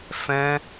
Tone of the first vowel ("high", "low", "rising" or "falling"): high